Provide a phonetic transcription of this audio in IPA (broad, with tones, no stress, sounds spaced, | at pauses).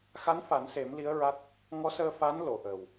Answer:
x a˧˥ n f a˨˩˦ n s e˨˩˦ m l i˧˥ ə̯ ɹ a˦˥ t̚ | ŋ ɔ˧˥ s əː˧ f a˧˥ n l o˨˩˨ ʔ əː˨˩ w